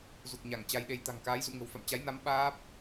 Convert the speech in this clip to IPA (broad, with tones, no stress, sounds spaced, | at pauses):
z u˨˩ k̚ ɲ a˧˩ ŋ t͡ɕ a˧ j ɗ e˧ j t̪ a̤˨˩ ŋ k aː˨˦ j z ṵ˧˨ ŋ ə̤˨˩ w f a̰˧˨ m t͡ɕ a˨˦ j n a˨˦ m ɓ aː˦˥ p̚